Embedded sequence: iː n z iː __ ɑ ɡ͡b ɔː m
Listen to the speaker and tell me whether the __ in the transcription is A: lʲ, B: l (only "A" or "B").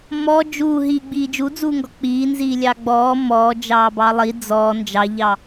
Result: A